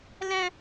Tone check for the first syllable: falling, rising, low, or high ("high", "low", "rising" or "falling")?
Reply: high